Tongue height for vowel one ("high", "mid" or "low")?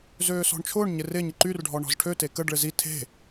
mid